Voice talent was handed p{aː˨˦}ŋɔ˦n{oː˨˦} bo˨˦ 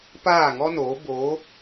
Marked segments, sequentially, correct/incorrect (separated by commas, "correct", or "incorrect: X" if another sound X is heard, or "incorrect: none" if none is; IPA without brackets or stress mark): incorrect: aː˦˨, correct